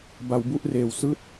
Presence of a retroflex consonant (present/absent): absent